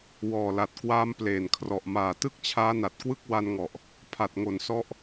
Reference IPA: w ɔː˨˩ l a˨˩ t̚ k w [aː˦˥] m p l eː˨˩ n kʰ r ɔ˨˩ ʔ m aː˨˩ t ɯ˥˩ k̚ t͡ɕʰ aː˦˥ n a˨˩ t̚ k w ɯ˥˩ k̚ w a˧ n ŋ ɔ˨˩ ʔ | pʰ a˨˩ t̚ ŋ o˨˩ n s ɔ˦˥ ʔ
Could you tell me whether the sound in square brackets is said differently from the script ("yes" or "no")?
no